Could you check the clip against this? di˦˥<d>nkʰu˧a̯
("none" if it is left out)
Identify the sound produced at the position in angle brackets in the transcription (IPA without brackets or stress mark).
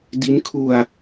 none